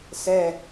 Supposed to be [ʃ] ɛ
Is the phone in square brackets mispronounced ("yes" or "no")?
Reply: yes